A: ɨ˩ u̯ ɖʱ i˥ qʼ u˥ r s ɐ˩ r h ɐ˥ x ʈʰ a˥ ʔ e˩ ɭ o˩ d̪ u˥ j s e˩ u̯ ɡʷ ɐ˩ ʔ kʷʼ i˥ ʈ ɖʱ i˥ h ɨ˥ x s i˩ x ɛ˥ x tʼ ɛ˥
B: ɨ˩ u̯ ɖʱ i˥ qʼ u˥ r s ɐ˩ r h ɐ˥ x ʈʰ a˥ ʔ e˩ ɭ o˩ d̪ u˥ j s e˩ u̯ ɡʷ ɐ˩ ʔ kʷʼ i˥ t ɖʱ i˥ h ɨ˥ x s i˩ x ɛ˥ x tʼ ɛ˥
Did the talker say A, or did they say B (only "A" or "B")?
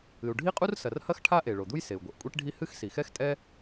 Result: A